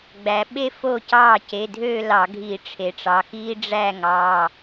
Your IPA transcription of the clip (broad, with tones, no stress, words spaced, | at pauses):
ɡ͡bæ˩˧ɓe˥ fo˥˩cɑː˥˩ce˩˧˩dʱø˥˧ lɑ˧˩˧ɡʱiː˧˩˧ ʈ͡ʂʰe˩˧ʈ͡ʂɑ˩˧˩xiː˥ ɖ͡ʐæ˥˧ŋɑː˩˧˩